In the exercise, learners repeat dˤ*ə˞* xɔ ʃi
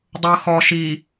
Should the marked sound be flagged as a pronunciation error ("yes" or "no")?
yes